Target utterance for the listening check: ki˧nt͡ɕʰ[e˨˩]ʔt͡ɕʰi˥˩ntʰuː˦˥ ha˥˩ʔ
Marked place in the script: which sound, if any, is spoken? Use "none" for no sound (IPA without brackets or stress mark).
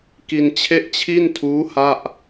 e˥˩